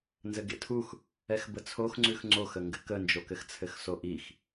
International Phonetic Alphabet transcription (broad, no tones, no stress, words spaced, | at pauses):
nzɘɡḛtʰux | ɛxbət͡sʰox ŋ͡ǀʉxŋ͡ǀoxəŋɡɘ kənd͡ʒokɘx t͡sʰɘxsoʔix